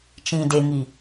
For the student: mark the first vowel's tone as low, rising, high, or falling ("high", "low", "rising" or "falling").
low